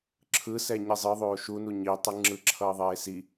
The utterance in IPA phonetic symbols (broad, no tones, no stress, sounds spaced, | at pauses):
ǁʰ ɯ s ɛ ɲ i zˤ ɯ ðˤ oː ʃ u n u ɲ i tˤ ɯ ŋ͡ǁ ɯ ǁʰ ʌː ðˤ eː s i